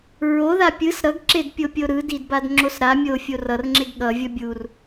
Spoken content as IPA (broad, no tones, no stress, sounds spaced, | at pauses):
ɹ o ð a pʲ ɯ s ɾ ʌ ɡ ǁ e d pʲ o pʲ o ɾ ɯ d i d b a d ŋ͡ǁ o s ɾ a mʲ o fʲ o r ʌ r ŋ͡ǁ e ɡ ɠ ʌ vʲ ʌ bʲ u r